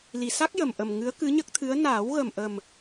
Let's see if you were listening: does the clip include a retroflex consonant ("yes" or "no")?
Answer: no